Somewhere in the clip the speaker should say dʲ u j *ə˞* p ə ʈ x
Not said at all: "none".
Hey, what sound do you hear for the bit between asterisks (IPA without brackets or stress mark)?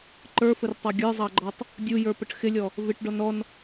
ə˞